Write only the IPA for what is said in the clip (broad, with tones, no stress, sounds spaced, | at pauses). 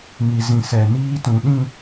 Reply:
ŋ i˨ z ĩ˨ s ɛ˨ n iː˦ t ũ˨ ɗ ĩ˦˨